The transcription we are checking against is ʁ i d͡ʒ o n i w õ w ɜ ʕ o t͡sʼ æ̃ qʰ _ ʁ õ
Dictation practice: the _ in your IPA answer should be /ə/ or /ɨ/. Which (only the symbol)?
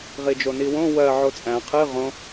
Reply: ɨ